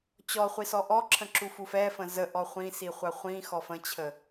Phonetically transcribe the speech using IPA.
t͡ɕ ɔ χʷ i s ɔ ʔ ɔ ǁʰ ə̃ ǁ u f u f ɛ f ə̃ z ə ʔ ɔ χʷ ĩ s i χʷ a χʷ ĩ x ɔ f ə̃ t͡ɕʰ ə

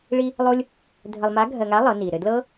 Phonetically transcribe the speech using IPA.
ɭ i˥ | lˠ o˥ lʲ | dʱ ə˧ lˠ m a˧˥ ɡʱ ɜ˧ ŋ a˧˥ lˠ ɤ˩˧ n i˩ ɾ ɘ˧ d l ɤ˥

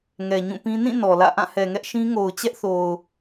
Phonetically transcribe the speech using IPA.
ŋ ɛ˨ ɲ ũ˦˨ p ĩ˦ n ĩ˦˨ n ɔ˨ l ä̰˦˨ ʔ ã˦˨ h ɛ˨ ŋ ɛ˦ ʔ ʃ ĩ˦ ŋ o˨ ʊ̯ t͡ɕ ɛ˦ ʔ θ o˨ ʊ̯

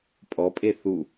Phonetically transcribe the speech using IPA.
pʼ ɔ pʼ e θ u

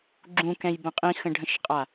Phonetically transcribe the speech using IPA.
ɡ͡ǁ ũ k ɛ̃ j b ə̃ qʼ ĩ x ə̃ ɖʱ ə̃ ʃ qʼ a

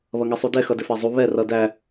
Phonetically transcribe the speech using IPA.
β ʌ ŋ ɛ sˤ u d ɛ x ʌ d ɪ f æ zˤ u β ɛ r ʌ d æ

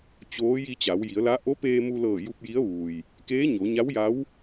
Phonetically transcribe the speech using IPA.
t͡ɕ oː˧˥ j i˧ t͡ɕ a˩˧ w j i˩˧ ə̯ l a˧˥ ʔ o˧˥ p eː˧ m u˧ l ɤː˧˩ j u˧ p̚ j i˧˥ ə̯ ʋ uː˩ j | k eː˧˥ ɲ o˩˧ ɲ a˧˥ w j a˧˥ w

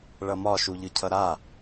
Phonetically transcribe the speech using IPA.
ɭ ʌ m ɒ ʃ u ʎ ɯ cʰ ʌ ɾ a

